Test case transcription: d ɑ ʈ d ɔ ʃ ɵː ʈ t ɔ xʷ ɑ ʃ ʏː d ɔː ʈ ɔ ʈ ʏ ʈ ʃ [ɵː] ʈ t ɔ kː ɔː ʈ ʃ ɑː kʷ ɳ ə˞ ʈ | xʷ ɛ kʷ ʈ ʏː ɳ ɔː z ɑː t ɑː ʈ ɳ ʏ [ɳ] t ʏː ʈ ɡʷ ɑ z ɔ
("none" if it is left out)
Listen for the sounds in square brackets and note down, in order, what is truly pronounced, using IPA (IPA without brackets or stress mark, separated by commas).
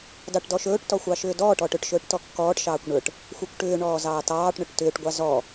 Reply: ɵː, ʈ